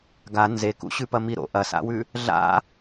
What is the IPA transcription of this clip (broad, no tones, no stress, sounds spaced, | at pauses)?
ɡ a n z e k ṵ ɕ ʉ p ɐ m i ɾ o̰ ʔ ɐ s a̰ w ʉ | ɮ a̰